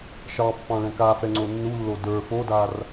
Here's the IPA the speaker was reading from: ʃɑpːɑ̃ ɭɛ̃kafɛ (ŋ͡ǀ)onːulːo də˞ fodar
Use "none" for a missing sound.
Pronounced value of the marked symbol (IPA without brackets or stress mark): ŋ͡ǀ